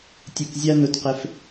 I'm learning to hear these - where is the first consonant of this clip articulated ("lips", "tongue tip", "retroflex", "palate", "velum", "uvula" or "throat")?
tongue tip